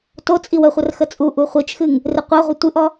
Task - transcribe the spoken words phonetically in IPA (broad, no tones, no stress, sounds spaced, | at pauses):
t o t͡sʼ i w ə χʷ ə r x ə t͡sʼ u ʔ u χʷ i t͡ʃ x ɨ ŋ | r ɨ qʷ a ʁʷ ə tʷ ɨ ʔ ɔ